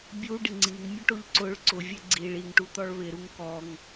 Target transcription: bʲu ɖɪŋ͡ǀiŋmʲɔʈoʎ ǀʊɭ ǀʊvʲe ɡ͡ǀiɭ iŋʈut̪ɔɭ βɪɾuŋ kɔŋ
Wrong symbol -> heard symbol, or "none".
none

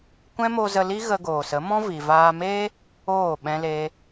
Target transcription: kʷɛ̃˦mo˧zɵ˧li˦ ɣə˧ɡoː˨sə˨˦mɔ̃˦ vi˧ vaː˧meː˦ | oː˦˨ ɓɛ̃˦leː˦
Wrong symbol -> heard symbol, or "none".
ɵ˧ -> ə˧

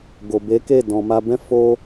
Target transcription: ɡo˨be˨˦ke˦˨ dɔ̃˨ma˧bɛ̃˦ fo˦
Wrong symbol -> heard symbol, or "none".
none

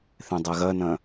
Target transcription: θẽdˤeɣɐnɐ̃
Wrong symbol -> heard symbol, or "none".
none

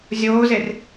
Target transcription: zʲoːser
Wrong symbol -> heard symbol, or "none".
s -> z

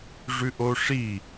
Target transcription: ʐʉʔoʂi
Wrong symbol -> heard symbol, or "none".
none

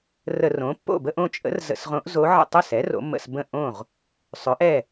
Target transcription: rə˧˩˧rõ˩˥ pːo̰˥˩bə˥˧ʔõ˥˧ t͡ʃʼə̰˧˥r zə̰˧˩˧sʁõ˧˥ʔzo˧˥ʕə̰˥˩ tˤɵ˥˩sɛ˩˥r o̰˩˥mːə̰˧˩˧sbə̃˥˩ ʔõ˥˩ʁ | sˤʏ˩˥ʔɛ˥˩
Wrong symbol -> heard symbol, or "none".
none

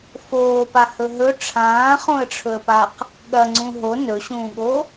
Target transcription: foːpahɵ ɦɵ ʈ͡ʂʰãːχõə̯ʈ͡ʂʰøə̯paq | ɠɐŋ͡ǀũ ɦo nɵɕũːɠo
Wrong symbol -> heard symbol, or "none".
ø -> ɵ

